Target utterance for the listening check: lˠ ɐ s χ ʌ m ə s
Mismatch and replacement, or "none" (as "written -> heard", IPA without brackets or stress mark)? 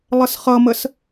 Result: ɐ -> ə